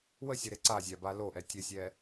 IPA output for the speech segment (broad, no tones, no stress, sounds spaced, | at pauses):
w ə sʲ ə ɾ e ǀ a zʲ a b a l o ʔ ɛ tʲ ə sʲ ɛ